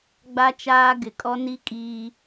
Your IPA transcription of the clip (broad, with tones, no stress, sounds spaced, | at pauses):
ɡ͡b a˦ t͡ʃ aː˦ ɡ ɪ˨ kʼ ɔ˦ n i˦ kʼ iː˨